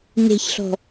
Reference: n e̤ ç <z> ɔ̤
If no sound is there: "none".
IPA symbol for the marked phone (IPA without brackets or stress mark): ɬ